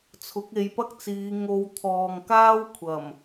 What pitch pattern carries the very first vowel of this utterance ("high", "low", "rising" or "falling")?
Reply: rising